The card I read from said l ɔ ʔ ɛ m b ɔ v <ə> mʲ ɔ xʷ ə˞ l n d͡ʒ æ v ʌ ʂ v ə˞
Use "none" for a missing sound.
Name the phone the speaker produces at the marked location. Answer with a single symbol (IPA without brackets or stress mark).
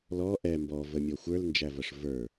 ə